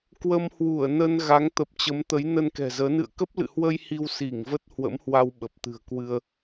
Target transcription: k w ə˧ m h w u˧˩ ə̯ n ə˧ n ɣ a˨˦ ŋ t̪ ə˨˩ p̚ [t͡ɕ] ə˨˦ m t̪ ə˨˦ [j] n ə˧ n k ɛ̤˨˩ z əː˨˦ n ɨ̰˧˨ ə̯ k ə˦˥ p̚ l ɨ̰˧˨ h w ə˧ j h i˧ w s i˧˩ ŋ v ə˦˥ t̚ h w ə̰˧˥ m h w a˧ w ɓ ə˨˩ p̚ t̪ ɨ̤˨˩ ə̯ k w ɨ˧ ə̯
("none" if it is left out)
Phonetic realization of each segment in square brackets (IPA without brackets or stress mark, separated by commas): t͡ɕ, j